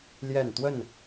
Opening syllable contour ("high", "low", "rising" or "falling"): falling